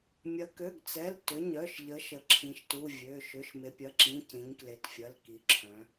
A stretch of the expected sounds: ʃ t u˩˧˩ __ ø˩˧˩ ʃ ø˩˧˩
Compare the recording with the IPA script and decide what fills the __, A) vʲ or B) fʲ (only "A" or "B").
A